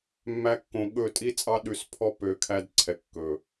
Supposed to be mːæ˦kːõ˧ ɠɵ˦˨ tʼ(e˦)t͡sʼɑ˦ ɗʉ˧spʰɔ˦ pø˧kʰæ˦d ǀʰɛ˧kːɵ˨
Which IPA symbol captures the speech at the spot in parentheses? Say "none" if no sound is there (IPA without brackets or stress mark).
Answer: i˦